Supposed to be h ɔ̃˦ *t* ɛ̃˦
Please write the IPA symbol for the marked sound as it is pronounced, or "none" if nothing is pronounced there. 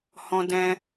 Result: d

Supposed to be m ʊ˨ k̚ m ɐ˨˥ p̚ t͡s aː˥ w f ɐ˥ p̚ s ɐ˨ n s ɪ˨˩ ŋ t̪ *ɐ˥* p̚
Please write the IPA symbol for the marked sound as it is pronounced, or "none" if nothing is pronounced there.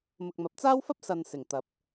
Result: ɐ˨˥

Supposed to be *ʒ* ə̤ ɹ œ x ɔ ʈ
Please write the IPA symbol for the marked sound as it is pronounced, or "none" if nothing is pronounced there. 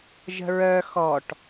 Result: ʒ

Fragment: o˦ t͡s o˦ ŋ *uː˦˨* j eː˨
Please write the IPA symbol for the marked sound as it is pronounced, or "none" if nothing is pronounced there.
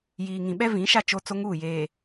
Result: uː˦˨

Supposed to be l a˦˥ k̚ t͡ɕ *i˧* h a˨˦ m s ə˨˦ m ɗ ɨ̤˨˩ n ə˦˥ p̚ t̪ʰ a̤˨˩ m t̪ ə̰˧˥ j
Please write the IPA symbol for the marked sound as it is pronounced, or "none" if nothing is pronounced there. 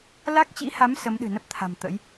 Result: ḭ˧˥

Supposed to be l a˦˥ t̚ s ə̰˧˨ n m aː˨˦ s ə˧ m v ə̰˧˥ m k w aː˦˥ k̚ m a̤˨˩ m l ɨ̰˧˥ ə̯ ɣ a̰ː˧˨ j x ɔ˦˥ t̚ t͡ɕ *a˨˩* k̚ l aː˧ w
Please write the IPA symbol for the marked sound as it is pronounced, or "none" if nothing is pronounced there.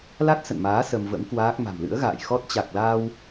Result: a˨˩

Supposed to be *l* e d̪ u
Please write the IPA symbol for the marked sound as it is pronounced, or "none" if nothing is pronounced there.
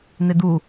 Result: n̪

